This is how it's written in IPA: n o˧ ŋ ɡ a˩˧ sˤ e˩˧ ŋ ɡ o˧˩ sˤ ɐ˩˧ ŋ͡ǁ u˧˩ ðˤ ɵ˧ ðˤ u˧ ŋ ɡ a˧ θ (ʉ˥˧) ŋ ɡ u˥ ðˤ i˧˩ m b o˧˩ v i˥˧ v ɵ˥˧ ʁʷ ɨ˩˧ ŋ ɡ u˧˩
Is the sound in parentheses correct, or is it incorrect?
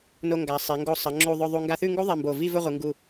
correct